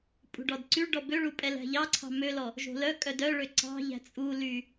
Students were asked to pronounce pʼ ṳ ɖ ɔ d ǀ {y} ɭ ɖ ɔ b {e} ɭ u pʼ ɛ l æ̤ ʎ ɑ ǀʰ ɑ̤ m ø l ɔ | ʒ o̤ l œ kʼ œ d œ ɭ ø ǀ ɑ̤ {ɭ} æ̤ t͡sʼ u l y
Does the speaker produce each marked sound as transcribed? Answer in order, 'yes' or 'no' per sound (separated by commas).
yes, no, no